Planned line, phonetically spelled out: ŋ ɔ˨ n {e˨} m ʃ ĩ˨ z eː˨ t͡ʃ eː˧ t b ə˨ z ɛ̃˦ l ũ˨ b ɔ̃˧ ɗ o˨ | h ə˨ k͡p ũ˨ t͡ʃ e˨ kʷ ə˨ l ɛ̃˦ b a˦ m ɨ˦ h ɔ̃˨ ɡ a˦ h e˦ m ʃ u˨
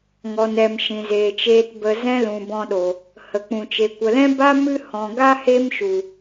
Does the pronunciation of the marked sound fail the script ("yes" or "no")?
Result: yes